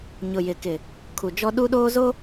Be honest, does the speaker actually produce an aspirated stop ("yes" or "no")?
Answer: yes